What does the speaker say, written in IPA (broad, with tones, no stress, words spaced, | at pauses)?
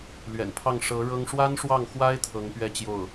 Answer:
lɥɛ̰˨˩npʰɑ˥˩ŋ ʂɤ˧˥ ɻɤ˥ŋ ʂwa˥nʂwɑ˥˩ŋxwa˥ɪ̯ t̪ʰɤ˧˥ŋpɥɛ˥˧ t͡ɕjo˥˩ʊ̯